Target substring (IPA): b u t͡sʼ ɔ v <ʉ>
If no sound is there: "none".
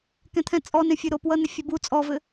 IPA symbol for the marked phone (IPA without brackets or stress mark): ɘ